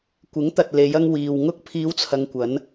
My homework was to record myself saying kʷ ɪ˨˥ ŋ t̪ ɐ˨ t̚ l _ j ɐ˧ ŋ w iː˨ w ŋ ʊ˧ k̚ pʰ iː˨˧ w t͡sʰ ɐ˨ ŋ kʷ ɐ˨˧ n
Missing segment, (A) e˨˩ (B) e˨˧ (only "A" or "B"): B